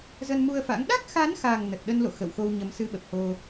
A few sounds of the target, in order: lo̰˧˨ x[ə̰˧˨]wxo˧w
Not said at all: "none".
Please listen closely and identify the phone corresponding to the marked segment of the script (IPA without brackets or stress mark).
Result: ə̰˧˨